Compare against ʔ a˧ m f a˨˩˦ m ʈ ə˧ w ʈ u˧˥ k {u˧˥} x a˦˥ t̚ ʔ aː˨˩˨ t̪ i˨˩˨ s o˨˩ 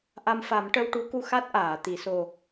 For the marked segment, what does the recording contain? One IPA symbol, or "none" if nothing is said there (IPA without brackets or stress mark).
u˧